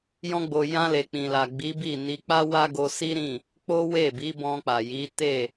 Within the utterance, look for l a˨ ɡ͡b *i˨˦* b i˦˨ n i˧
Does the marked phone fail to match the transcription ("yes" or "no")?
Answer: no